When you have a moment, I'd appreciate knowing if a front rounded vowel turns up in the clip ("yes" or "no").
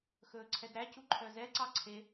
yes